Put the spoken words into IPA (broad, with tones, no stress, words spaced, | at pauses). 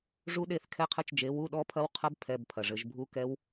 ʐu˦˥ ɗe˥˧θkʰɛ˦˥qʰɘ˧˥˧t͡ʃd͡ʒe˨˥ wu˧˥˧ɗɔ˦˥ pʰɐ˦˥wqʰɐ˦˥b pʰɛ˧˥˧bpʰɐ˨ʐɘ˨˥ʒ bʱu˦˥kɛ˦˥w